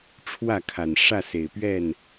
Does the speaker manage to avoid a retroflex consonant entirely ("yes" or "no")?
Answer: no